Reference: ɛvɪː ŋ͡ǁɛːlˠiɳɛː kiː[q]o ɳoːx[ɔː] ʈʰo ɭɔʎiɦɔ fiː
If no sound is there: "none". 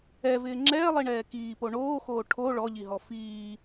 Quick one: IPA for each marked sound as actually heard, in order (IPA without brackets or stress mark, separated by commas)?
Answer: p, oː